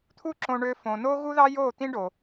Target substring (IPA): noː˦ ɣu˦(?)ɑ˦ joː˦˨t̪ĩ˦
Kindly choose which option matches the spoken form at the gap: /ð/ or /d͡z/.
ð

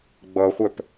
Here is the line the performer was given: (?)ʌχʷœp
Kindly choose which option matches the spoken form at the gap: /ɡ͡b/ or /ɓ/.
ɡ͡b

